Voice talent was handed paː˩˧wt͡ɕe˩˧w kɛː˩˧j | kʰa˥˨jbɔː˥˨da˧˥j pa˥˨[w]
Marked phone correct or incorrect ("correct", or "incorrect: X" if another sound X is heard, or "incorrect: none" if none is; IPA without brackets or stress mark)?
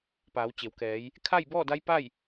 incorrect: j